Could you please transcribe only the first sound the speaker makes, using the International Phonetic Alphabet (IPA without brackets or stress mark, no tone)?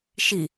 ʃ